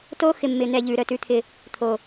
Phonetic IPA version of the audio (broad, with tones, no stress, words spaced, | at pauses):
to˦ xɪ˨mːɪ˨ n̪ɛ˦˨ʎʉ˨˦ɾœ˨ tʉ˦t̪ʰɪ˦ | t̪ʰo˨